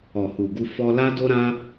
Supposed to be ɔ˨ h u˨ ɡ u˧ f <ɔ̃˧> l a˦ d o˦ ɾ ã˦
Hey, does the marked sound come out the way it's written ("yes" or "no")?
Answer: no